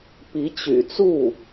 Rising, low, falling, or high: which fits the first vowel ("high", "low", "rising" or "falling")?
rising